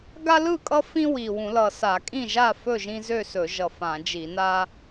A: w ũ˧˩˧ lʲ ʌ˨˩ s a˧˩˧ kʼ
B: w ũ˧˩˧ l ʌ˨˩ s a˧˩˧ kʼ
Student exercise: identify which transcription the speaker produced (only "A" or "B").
B